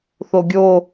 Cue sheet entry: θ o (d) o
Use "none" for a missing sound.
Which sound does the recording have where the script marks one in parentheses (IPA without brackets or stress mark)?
ɡʲ